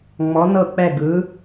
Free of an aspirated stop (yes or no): yes